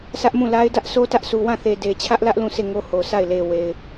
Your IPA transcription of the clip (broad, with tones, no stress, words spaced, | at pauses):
sʰä˦ʔmũ˦˨la˦ɪ̯ dä˦ʔ so˦tä˦ʔ su˨wã˦˨θe˨ de˨t͡ɕʰä˦ʔlä˦ʔ lũ˦˨sʰe˦˨ŋo˦ ho˨sa˦˨ɪ̯le˨we˨ɪ̯